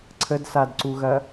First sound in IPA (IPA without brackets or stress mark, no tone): ǀʰ